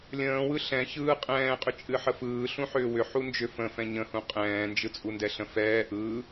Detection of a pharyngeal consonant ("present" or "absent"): present